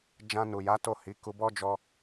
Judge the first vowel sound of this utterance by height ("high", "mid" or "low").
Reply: low